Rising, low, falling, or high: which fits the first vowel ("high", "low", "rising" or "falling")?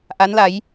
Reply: rising